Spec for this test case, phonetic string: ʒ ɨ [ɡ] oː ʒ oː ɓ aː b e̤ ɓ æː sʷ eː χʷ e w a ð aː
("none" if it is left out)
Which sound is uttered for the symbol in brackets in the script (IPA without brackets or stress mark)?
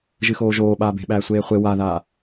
x